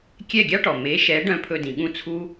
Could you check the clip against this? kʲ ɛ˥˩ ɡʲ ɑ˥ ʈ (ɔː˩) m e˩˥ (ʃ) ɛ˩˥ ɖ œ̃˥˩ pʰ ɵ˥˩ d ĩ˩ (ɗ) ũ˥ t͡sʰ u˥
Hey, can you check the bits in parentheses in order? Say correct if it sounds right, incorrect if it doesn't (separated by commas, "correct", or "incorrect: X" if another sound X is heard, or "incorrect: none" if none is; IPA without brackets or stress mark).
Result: incorrect: ɔ˩, correct, incorrect: ɠ